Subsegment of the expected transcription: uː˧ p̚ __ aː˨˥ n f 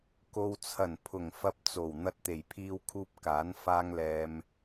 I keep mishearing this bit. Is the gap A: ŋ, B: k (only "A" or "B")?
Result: B